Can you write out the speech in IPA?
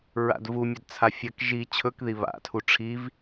ɹ a̰ d v u mʲ ɐ d t͡sʰ a fʲ ɐ k ʒ i t͡ɕʰ ɵ k ð i β a̰ tʰ u ʈ͡ʂʰ i v

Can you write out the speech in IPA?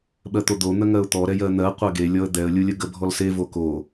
ɓ ɜ t̪ o d̪ o n̪ ə ŋ ɜ ʊ̯ t̪ ɔ ɾ ɛ j ɜ n̪ ɜ qʷ ɜ ɡ e lʲ ɔ ə̯ d̪ ɛ ə̯ lʲ u lʲ ə ɡ ə bʱ ɔ l s e v o k o

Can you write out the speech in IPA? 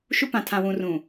ʃ u˦ p ã˨ tʰ ã˨ w ũ˨ r ũ˨

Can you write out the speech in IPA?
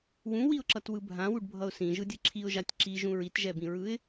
w ũ w i ʊ̯ ǁ ʌ t w ɯ bʱ ã w u ɖ bʱ ʌ ʊ̯ s ĩ ʒ ɯ dʲ ɯ ǁʰ i ʊ̯ ʒ a tʲ ǁ i ʒ ũ ɹ i t ʒ ɛ b ĩ ɹ ɯ ɪ̯

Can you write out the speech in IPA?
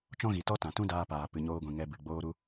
t͡ʃ ɔ̃˦ ɣ i˨ t ɔ˦ t ã˨ t ũ˦ d aː˧ p aː˨ p ɨ˨ ɲ oː˧ ɡʷ ĩ˨ ŋ ɛ˧ b ɨ˨ ɡ͡b oː˦ ɾ u˧

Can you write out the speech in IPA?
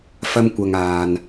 f ɐ˧ m kʷ ɐ˨ ŋ aː˨ n

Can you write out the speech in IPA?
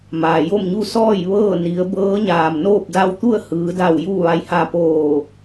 m aː˩ j o˥˨ m ɲ u˥˨ s ɔː˥˨ j ʋ ɤː˥˨ n i˩˧ ə̯ b ɤː˧˥ ɲ aː˩ m n oː˥˨ p̚ d a˧ w t̪ u˥˨ ə̯ h ɯː˩˧ d a˧˩ w j u˥˨ ʋ a˧ j h a˧ p oː˧˩

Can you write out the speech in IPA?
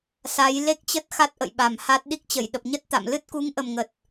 s a˨˦ j l e˦˥ k̚ t͡ɕ ə˦˥ t̚ x a˦˥ t̚ ʔ ə̰˧˨ j ɓ a˨˩ m h a˦˥ t̚ ɗ i˦˥ k̚ t͡ɕ ə˧˩ j ɗ ə˨˩ p̚ ɲ ə˦˥ t̚ t̪ a̰˧˨ m l ɨ˦˥ t̚ k u˨˦ ŋ ʔ ə˨˩ m ŋ ə˨˩ t̚

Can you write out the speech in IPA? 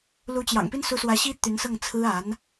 l u˧˥ t͡ɕ j ɑ̰˨˩ ŋ p i˥ n s u˧˥ s w ä˧˥ ɕ i˥ t̪ y˧˥ n s ɤ˥˩ ŋ t͡sʰ ɹ̩˥ a˧˥ n

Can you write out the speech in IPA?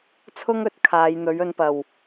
t͡sʰ ʊ˥ ŋ ɵ˧ t̚ kʰ aː˨˧ j n̪ ɵ˨˥ ɥ ɵ˨˧ n p ɐ˨˩ w

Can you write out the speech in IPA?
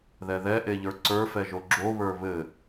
ð ɛ ð ɛ ʔ e ʎ ə˞ ǀ ə˞ f ɛ ʒ o ɡ͡ǁ o β ə˞ β ɘ

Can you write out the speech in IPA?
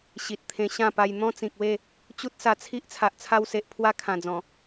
ɕ i˨ t̚ t̪ʰ ẽ˧ ɕ ã˥˧ p a˧ j n̪ ɔ̃˦ t͡s ĩ˨ k̚ w e˥˧ | t͡ɕ u˦ t̚ s a˧ t͡sʰ i˦ ʔ t͡sʰ a˨ ʔ t͡sʰ a˧ w s e˨ ʔ pʰ w a˧ kʰ ã˨˩ d͡z ɔ̃˨˩

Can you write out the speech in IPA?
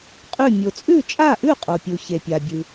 qʼ ʉ˥˨ mʲ o˨ t͡sʼ ʉ˥˨ t͡ʃʼ a˥˨ ʔ ʉ˥˨ qʼ o˨ pʲ u˨ ç e˨ pʲ a˨ bʲ ɨ˨

